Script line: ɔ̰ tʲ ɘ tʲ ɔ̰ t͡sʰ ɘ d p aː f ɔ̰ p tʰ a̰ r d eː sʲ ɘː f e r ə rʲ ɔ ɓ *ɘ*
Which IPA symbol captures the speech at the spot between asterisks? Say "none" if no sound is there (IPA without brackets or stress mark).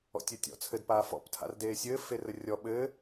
ɘː